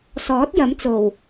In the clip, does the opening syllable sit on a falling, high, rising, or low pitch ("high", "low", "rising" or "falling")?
rising